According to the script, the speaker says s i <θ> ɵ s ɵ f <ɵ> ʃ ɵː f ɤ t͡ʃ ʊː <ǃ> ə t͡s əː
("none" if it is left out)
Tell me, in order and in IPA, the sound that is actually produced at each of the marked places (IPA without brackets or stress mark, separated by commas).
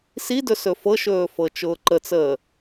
d, ɤ, ǃ